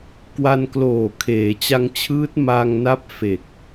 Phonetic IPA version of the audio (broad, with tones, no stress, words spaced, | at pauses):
kwa˧nkloː˨˩ kʰeː˩˦t͡ɕa˧ŋt͡ɕʰɯː˦˥t̚ ma˧ŋna˦˥p̚ fe˨˩k̚